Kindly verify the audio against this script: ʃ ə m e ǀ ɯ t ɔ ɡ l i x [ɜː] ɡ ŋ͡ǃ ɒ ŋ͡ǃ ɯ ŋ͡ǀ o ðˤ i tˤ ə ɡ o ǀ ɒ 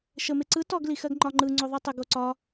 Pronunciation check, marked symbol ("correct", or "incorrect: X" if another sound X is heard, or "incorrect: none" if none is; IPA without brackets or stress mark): incorrect: ɜ